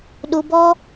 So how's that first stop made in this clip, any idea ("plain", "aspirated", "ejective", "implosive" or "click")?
implosive